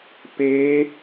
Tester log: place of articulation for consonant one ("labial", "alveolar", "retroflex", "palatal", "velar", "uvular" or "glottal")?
labial